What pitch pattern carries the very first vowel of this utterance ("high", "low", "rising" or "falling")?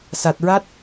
low